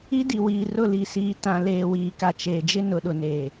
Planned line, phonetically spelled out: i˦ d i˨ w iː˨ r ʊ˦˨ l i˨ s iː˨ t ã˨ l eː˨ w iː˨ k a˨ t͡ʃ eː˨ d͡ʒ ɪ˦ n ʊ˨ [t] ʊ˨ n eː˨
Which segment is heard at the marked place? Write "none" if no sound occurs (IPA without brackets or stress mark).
ɗ